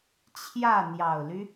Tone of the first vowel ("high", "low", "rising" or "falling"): falling